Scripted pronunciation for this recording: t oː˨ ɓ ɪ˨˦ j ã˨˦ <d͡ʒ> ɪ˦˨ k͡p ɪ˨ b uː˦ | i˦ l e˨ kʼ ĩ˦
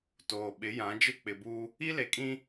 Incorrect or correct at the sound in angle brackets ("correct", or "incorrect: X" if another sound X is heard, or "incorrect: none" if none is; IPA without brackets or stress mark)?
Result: correct